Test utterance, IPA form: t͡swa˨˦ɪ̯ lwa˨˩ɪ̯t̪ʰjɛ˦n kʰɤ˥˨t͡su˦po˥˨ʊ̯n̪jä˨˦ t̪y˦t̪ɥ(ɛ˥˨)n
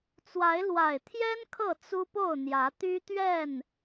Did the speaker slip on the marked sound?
no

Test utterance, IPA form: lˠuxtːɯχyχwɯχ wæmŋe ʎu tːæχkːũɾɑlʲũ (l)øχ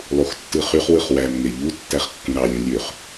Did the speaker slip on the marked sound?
yes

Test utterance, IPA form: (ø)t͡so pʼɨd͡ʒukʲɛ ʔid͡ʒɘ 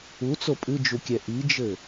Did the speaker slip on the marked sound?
yes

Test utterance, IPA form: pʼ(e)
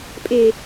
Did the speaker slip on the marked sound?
no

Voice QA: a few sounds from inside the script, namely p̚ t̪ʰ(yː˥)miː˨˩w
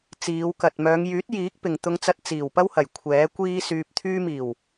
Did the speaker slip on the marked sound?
yes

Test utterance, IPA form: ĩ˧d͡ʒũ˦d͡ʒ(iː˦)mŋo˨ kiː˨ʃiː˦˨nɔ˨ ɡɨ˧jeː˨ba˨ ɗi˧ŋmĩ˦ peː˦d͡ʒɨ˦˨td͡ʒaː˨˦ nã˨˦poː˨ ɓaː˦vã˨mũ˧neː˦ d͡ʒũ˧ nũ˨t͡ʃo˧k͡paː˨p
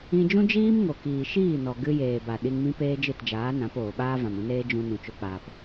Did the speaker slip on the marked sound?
no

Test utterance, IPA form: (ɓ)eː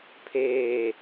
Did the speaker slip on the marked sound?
yes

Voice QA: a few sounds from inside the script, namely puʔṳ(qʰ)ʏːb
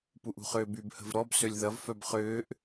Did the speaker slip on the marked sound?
yes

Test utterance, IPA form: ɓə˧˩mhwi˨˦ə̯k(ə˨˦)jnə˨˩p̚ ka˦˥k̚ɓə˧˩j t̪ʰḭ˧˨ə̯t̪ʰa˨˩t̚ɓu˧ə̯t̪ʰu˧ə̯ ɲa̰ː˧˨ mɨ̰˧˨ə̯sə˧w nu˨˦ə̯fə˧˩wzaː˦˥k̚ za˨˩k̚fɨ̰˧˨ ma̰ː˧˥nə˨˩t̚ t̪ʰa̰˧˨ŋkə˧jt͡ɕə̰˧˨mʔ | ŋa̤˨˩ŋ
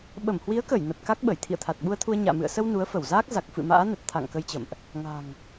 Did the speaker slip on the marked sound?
yes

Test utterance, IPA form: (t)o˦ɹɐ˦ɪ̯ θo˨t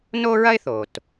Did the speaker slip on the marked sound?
yes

